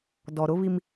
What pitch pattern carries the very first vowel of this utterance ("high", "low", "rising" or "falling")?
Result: low